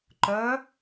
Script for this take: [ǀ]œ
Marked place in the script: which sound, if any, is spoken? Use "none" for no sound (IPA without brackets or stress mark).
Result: ǃ